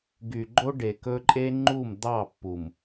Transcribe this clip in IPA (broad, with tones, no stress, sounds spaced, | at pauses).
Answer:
ɡ y˨ ɡ͡ǃ o˦ ɖ e˨ k ɵ˦ ǃʼ e˦ ŋ͡ǃ u˦˨ m d̪ ɑ˦˨ pː u˨ m